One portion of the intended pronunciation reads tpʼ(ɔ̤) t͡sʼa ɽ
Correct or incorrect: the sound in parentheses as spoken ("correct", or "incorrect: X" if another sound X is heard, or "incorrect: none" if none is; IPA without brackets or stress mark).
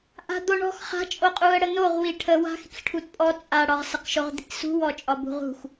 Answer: incorrect: ɔ